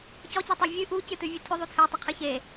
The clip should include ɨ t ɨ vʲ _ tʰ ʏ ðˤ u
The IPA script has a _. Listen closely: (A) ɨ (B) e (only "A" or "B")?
A